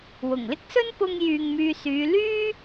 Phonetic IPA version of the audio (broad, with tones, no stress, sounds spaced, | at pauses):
w ʊ˨˩ ŋ l ɪ˥ k̚ s ɵ˥ n p ʊ˥ ŋ j yː˧ ŋ m yː˧ s yː˨˧ l yː˥